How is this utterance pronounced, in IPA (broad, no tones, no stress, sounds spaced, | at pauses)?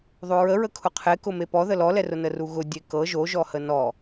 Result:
ðˤ o ɹ ə ɹ ə kʰ ʊ qʰ e k ʊ m e p ɔ ð ə l ɔ l ɛ r ʊ n ə r u ɣ ʊ dʲ e k ɤ ʒ o ʒ ɔ h ə n ɔ